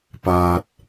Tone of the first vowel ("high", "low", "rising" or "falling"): low